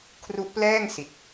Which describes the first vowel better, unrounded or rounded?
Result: rounded